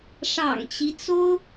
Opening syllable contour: low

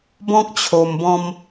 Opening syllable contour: high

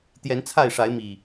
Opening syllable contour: rising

